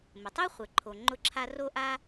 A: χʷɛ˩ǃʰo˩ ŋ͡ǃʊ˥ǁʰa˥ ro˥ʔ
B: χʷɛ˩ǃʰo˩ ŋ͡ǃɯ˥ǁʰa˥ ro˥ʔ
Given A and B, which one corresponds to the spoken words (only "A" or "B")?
A